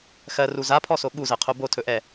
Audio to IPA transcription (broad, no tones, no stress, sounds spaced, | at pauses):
x ɜ r u z a pʰ ɔ s o ɠ u z ɜ qʰ o b o tʰ ɵ ʔ ɛ